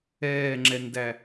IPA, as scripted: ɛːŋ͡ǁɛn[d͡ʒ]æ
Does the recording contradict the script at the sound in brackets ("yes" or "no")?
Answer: yes